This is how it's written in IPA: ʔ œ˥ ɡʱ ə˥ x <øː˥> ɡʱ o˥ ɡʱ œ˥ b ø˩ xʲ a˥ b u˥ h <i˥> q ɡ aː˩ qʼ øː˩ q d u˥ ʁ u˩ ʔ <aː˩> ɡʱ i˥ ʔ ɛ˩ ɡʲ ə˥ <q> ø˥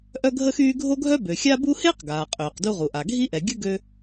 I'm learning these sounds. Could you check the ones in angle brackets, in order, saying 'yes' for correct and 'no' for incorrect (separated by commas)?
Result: no, no, no, no